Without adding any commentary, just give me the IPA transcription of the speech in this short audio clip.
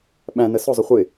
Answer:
ɓæ̃nə sʊzˤʊ χʷɪ

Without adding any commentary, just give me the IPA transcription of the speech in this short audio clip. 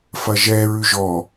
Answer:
fɐʒɛ ɹʉʒɔ

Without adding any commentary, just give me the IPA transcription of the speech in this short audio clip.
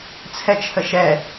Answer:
t͡sʰɛt͡ʃʰəʃɛ

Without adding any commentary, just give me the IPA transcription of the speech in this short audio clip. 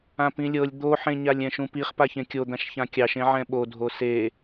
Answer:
ãpĩlʲɤlʲ d̪oħẽɲalʲ ɛ̃ʃũpiχ paçẽkʲod̪ãʃ çãkʲɑʃẽ ʕɛ̃ɓodʱo se

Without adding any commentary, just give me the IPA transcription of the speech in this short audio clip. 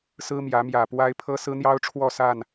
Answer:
sɹ̩˦mjä˨˦mjä˨˩pwa˦ɪ̯ pʰɤ˦sɹ̩˦n̪jɑ˦ʊ̯ ʈ͡ʂʰwɔ˥˨sa˥˨n

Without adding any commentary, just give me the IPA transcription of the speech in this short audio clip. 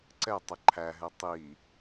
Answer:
ǀɛtˤə ǃʰæɦɛ tˤi

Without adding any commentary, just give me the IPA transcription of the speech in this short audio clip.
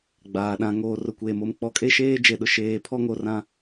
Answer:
ɡ͡baː˨ɗã˨˦ ŋoː˨rʊ˨kʷeː˨m o˨mk͡pɔ˨˦kʼe˦ʃeː˦ d͡ʒe˨ɗʊ˨ ʃeː˦˨ pʰɔ˦ŋo˨rã˨

